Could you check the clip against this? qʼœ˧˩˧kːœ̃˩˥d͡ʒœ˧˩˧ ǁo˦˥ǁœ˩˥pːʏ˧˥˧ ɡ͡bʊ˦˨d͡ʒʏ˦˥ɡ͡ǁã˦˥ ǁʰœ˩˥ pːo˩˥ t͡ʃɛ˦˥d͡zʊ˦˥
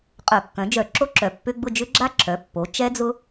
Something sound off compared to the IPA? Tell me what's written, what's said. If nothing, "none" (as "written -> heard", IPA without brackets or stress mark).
ã˦˥ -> a˦˥